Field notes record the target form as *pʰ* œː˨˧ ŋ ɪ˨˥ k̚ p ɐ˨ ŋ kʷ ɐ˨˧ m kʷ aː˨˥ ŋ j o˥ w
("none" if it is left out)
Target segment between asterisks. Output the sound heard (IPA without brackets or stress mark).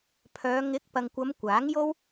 pʰ